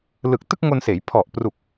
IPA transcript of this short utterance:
lɯ˨˩k̚tɯ˥˩k̚ŋo˧nseː˩˦j pʰɔ˨˩ʔ pru˨˩k̚

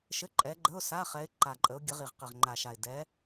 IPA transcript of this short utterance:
ʃɘ˧˥˧ǃʼɛ˨˦ɡ͡ǃə˧˥˧ʊ̯ sa˧˥˧χɛ˨˦ɪ̯ ǃa˨˩ǃʼə˨˦ʊ̯ɡʲə˨˦ʁi˨˩ʁ qɘ˨˩ʁŋ͡ǃa˨˩ʃa˨˩ɪ̯ dɛ˨˦

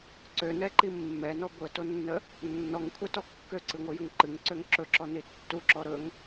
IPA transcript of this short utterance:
ǀønɛǃi mːɛnɔ ɡʷətonːə | nːɔŋkʷʰɛtɔ kːøǀɨŋʷɨjəŋ ǃɨŋǀøŋ ǁɵǁɔni tːuǁɔ ɾɵŋ

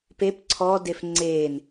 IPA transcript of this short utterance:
pep ǀʰɔdef ŋ͡ǀen

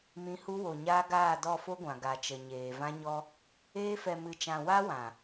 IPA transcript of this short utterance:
mĩ˨˦hu˧wo˨ɲaː˧ ɡaː˦˨dɔ˦˨fo˦ɡʷã˨ ɡa˨t͡ʃə˨ɲeː˨ vã˧ɲɔ˧ | eː˧fɛ˨mɨ˨t͡ʃã˨ wa˦wã˨

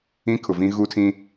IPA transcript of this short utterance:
ĩ˦kʰʊ˨vĩ˦ ɣu˦tʰĩ˦

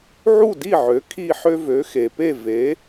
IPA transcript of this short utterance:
ʕu˥˩di˥˩ʕø˩˥ kʰi˥˩ħø˥ vø˩˥xe˩pe˥˩ ve˩˥

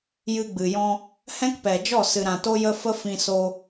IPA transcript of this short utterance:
jɨ˧ɡ͡bɨ˨jɔ̃˧ | hɛ̃˦kpɛ˨d͡ʒɔ˦˨ sɨ˨ɾã˨ to˦jə˦ fə˦fĩ˧so˧

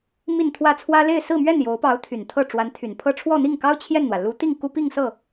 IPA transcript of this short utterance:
mi˥˧nt̪ʰwä˥˩t͡sʰwä˥ le˥˧ɪ̯sɹ̩˥˧mɥɛ˥˩n jo˧˥ʊ̯pɑ˧˥ʊ̯t̪ʰy˨˩n t̪ʰɤ˥˩ʈ͡ʂwa˧˥nt̪ʰy˨˩npʰɤ˥˧ ʈ͡ʂʰwɔ˥˧n̪i˥˩ŋkɑ˥ʊ̯ t͡ɕʰjɛ˥˩nn̪wä˩ lu˧˥t̪i˥˩ŋ ku˥pi˥˧ŋ sɤ˥˩

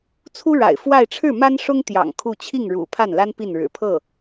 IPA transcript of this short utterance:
t͡sʰu˥ ɻa̰˨˩ɪ̯fwa˥˧ɪ̯ ʈ͡ʂʰɻ̩˥˩ma˥nʂʊ˥ŋ t̪jɑ̰˨˩ŋ kʰu˥˧ t͡ɕʰi˥˩ŋɻṵ˨˩ pʰa˥˩nla˥n pi˥˩nɻɻ̩˨˩pʰɤ˥˩

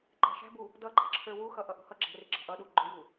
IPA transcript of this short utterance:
ǃæ̤ʃæ̤bu | dʌɡ͡ǃɑ̤ǁʰə˞ wuxʌ ʔʌʔṳhʌ ɡ͡ǁæ̤rɪ ɡ͡ǁɑ̤ʔʌɗu ɡ͡ǃʊju

